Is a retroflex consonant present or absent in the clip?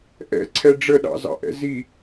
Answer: present